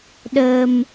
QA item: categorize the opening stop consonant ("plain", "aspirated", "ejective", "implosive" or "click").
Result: implosive